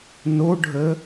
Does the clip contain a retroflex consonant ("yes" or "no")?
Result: yes